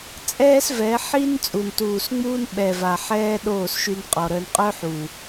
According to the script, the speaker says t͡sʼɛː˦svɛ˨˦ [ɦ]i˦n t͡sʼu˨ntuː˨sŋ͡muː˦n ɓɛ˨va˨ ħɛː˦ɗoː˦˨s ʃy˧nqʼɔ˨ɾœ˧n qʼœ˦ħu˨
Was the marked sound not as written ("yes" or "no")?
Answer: yes